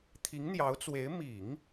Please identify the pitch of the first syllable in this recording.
rising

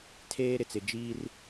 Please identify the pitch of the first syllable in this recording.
high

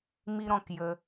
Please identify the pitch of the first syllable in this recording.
high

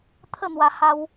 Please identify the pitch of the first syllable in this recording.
falling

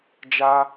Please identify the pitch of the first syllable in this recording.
high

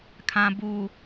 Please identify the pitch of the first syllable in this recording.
low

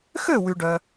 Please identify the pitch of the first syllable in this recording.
falling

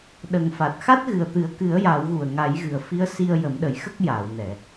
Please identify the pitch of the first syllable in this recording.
low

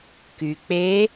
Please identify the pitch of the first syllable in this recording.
low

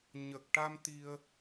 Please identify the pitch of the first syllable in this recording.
low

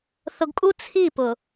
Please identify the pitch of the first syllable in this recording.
low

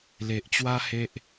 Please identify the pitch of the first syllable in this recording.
low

